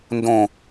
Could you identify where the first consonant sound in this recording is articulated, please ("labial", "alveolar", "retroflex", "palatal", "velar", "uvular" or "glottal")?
alveolar